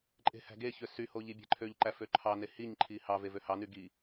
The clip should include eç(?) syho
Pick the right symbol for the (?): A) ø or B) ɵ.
A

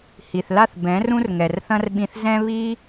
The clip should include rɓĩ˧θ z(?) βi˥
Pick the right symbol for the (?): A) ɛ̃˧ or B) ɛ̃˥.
B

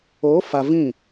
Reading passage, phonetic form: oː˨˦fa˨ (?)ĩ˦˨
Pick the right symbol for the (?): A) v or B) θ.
A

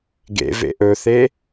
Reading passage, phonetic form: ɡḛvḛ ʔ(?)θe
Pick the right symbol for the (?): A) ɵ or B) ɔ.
A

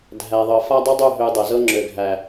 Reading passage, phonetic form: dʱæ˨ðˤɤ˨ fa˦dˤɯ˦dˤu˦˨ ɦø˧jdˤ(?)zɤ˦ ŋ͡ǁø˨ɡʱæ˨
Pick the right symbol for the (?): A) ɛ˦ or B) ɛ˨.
B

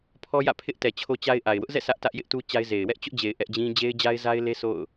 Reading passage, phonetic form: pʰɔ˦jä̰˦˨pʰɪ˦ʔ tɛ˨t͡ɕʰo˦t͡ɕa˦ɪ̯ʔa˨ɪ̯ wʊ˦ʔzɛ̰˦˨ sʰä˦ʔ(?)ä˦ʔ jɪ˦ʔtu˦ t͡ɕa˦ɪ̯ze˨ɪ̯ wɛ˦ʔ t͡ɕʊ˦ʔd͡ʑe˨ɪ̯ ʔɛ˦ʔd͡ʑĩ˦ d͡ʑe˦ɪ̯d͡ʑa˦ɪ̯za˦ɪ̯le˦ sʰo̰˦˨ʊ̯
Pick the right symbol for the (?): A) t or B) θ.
A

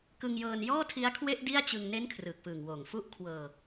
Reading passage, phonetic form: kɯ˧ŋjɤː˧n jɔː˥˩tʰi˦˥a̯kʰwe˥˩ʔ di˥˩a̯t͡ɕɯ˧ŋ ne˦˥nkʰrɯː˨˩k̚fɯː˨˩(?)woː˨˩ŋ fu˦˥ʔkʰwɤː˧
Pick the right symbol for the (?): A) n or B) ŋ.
B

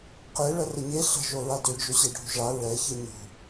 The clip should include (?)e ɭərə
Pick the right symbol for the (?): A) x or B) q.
B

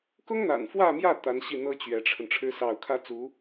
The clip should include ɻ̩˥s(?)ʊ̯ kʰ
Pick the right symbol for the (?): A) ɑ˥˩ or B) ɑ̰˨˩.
A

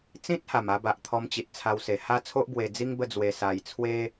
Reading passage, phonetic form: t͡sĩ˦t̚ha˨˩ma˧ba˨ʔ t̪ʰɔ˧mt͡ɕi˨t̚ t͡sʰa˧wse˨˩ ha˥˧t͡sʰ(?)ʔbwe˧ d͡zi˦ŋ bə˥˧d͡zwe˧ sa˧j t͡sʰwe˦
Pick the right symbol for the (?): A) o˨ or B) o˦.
B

